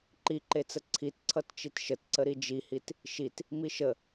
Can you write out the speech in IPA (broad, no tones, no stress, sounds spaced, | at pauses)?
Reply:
ǃ i ǃ e t͡s ə ǀʰ i t ǀʰ ʌ t t͡ʃ i t ʃ ə t ǀ ə ɾ i d͡ʒ i h i t | ʃ i t | m i ʃ ə